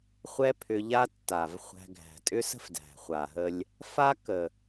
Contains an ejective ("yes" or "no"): yes